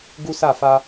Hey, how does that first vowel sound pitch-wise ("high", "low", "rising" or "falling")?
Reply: high